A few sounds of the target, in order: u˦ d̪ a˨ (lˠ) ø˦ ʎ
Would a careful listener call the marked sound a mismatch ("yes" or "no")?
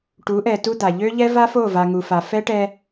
yes